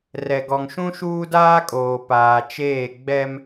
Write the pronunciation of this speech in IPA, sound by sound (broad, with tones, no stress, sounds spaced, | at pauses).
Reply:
r ɛ˨ ɡ ɔ˨ ŋ ʃ ũ˦ ʃ uː˦ d aː˦ kʼ oː˨ p aː˨ t͡ʃ eː˦˨ ɡ͡b ɛ˦ m